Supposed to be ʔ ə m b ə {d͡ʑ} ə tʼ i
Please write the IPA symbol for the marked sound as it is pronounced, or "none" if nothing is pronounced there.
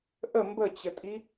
t͡ɕ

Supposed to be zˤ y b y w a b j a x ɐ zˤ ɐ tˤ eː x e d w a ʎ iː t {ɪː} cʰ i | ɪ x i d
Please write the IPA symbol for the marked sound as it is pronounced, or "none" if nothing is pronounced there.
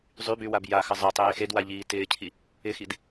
ɪː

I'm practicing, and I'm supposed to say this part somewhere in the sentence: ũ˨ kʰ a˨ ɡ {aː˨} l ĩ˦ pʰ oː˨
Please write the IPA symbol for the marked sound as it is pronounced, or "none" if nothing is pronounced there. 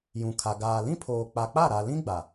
aː˨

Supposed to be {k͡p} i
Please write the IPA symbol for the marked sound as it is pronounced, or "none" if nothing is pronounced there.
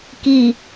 k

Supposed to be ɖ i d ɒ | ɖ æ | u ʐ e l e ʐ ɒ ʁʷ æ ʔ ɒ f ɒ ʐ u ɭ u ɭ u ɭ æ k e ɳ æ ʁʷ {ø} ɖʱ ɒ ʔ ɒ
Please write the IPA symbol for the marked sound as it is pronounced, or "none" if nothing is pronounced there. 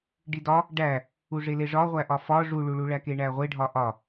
e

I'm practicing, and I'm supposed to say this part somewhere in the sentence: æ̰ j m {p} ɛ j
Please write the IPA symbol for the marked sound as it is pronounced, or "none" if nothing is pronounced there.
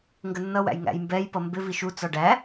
b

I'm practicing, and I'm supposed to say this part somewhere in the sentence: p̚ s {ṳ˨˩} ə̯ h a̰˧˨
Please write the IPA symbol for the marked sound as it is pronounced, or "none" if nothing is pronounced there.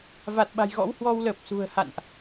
ṳ˨˩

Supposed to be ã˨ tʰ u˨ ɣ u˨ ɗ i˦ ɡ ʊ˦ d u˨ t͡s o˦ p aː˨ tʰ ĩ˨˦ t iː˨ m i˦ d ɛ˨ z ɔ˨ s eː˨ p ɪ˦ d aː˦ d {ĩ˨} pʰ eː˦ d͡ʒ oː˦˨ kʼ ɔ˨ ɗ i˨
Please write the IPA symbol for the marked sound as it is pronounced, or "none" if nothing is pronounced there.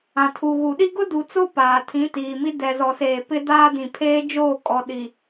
ĩ˨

